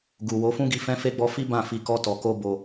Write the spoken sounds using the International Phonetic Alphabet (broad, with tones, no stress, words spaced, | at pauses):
ɡu˨wo˨˦fũ˦ɡi˧ fɛ̃˦fe˦ɡ͡bɔ˦ fi˦bã˦˨fi˧ kɔ˦tɔ˧ko˦ bo˧